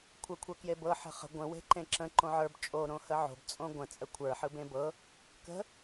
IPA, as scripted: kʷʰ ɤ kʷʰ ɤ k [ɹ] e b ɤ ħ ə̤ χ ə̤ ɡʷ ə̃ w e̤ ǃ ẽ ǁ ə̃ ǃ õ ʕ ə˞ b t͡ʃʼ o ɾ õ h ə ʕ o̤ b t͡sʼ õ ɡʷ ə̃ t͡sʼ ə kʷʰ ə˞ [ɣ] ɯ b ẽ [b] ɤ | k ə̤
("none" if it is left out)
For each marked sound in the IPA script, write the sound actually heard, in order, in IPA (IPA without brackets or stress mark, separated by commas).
j, ħ, b